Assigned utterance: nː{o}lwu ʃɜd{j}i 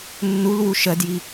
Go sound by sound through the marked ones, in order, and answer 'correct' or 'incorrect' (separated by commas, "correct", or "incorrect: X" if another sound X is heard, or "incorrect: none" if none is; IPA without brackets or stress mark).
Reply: incorrect: u, correct